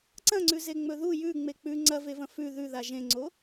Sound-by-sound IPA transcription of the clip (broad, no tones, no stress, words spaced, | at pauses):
ǀɐ̃ŋ͡ǀʉzeŋ͡mɵ ðu jʉŋ͡me k͡pʉ ŋ͡ǀɐvevɐ̃ fʉ ðʉða ʒẽŋ͡ǀo